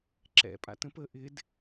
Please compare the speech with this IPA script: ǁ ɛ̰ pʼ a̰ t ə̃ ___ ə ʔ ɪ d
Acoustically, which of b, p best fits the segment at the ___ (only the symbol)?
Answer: p